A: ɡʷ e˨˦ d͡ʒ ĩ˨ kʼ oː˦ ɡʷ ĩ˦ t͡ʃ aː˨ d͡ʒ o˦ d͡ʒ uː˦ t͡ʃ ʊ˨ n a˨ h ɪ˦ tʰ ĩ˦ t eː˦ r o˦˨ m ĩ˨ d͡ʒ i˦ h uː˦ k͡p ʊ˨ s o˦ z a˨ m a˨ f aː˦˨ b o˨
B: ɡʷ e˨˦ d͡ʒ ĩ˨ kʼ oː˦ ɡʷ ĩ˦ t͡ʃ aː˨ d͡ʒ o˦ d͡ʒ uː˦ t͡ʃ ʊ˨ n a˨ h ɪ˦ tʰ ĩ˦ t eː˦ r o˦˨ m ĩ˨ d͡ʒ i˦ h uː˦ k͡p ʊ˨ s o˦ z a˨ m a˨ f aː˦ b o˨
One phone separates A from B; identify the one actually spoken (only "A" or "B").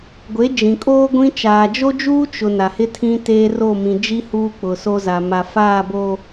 A